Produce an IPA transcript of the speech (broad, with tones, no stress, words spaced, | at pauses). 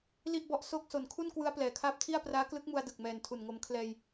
li˥˩ʔbɔ˦˥ʔ so˥˩k̚ so˨˩nkʰu˥˩n kwɯ˦˥a̯plɛː˩˦kʰaː˦˥p̚tʰi˥˩a̯ praː˦˥klɯ˦˥k̚mu˧a̯ dɯ˨˩k̚mɛː˨˩n tʰu˨˩nŋo˧m kʰlɛː˧j